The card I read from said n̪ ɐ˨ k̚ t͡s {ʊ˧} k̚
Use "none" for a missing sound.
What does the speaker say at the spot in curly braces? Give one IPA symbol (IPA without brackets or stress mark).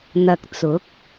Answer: ʊ˨˥